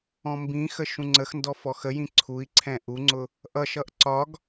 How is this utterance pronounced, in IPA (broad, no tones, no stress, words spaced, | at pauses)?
ɔ̃mbĩxə ʃũŋ͡ǀəxndɔ fɔxəjĩ ǀʰui̯ǀʰɛ̃ ʔuŋ͡ǀʊ | ʔʌʃʌʔ ǀɒɡ